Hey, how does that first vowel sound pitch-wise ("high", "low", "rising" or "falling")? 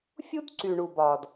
high